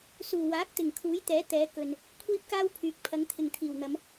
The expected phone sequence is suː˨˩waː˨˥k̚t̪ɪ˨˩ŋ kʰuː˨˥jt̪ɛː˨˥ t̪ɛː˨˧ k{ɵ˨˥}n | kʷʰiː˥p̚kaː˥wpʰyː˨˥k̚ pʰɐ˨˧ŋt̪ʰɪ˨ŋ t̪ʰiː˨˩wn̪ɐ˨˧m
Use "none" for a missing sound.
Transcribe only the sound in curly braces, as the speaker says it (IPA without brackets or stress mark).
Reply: ɵ˨